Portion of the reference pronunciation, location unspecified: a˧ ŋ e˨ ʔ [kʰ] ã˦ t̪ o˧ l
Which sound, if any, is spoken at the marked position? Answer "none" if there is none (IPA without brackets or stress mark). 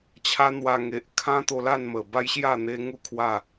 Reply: kʰ